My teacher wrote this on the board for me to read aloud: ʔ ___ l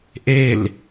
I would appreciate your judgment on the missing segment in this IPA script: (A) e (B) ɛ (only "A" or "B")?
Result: A